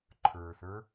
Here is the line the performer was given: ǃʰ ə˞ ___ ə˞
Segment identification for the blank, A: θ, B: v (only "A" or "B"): A